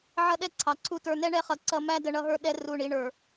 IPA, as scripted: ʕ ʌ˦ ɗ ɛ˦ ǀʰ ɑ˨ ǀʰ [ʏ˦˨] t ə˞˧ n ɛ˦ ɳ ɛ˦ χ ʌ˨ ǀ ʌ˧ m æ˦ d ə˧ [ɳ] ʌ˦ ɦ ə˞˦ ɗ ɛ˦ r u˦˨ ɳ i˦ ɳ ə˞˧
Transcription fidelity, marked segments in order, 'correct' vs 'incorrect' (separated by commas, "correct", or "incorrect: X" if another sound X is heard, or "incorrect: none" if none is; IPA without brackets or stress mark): incorrect: u˦˨, correct